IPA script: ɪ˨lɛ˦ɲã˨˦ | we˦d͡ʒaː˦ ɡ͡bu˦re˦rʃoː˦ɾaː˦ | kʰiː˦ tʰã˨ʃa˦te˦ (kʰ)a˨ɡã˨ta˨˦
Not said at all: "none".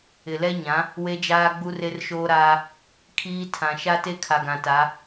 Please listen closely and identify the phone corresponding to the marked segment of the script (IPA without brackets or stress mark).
kʰ